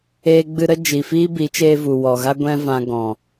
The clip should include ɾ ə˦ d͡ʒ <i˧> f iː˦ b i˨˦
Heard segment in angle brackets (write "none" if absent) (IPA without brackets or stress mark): i˨